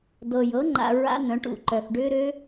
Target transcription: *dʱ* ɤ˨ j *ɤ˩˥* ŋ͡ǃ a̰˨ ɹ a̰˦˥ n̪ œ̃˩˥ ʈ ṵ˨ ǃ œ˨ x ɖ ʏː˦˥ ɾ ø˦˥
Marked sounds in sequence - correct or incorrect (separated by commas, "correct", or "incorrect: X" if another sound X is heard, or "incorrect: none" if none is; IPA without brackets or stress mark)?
incorrect: d, correct